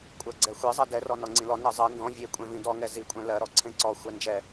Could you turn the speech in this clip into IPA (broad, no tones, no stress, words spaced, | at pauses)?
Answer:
kʷʼɜɡ͡ǀɛxʷezˤɜ dɛrɔ nɔŋ͡ǀĩlɔ nɜzˤɜ ndɔ̃ vʲekʷʼɛ̃vĩ dɔŋɛ zikʷʼɛ̃ lɜɾɔ ǀʰẽǀɔ xʷɛnd͡ʒɛ